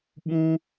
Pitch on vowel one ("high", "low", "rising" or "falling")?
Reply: high